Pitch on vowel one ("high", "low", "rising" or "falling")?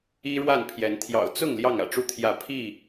high